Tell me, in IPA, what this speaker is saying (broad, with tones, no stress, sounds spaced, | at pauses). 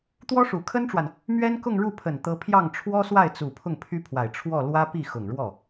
t̪ w ɔ˥ ʂ u˨˩ kʰ ə˥ n ʈ͡ʂ w a˨ n | m ɥ ɛ˥ n k ʊ˥˧ ŋ ɻ u˥˩ pʰ ə˨˩ n t̪ ɤ˧˥ pʰ j ɑ˥˩ ŋ ʈ͡ʂʰ w ɔ˥ s w a˥˩ ɪ̯ t͡s u˨˩ pʰ ʊ˥˩ ŋ pʰ y˥ pʰ w a˨˩ ɪ̯ ʈ͡ʂʰ w ɔ˥˩ l w ä˥ p i˥˩ x ʊ˨˩ ŋ ɻ w ɔ˥˩